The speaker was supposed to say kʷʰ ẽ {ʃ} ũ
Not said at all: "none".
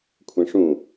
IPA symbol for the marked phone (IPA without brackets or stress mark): ʂ